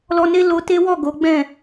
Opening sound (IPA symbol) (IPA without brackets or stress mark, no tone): l